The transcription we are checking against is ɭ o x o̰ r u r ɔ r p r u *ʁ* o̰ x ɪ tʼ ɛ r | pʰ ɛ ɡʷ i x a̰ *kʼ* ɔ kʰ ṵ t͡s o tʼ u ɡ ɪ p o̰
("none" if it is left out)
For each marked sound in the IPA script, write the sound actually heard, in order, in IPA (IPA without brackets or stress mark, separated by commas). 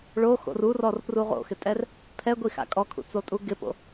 ʁ, kʼ